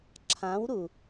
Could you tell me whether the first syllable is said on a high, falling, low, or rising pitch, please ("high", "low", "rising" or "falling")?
rising